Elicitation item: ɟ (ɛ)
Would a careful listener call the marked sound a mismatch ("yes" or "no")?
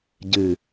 yes